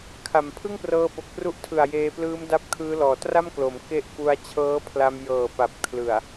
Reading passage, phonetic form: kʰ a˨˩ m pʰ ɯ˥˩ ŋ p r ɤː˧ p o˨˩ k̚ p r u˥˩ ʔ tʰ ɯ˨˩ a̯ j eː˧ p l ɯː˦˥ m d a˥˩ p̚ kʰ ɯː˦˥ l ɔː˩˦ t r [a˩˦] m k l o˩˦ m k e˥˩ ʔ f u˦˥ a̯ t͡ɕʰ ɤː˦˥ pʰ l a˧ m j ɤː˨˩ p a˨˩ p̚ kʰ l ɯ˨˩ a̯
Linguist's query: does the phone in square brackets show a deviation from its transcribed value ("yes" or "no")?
yes